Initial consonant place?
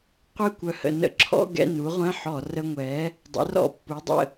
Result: uvular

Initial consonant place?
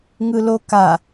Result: velar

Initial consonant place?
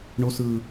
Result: retroflex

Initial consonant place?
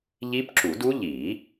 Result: palatal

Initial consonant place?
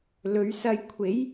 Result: alveolar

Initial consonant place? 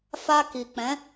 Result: labial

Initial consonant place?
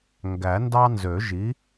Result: velar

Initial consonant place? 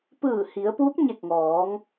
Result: labial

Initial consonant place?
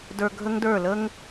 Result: alveolar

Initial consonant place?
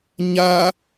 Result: palatal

